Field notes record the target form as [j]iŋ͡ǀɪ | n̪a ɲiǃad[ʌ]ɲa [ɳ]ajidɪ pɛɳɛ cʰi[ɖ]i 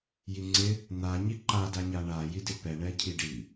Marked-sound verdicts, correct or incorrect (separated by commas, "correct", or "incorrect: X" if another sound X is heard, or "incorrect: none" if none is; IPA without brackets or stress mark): correct, incorrect: a, correct, correct